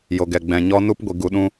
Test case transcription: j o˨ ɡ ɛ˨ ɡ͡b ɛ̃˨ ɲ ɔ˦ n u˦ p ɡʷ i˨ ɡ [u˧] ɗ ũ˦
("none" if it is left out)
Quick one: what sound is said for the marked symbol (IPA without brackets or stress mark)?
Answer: u˧